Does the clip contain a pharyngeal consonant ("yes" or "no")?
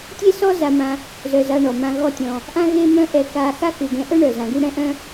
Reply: no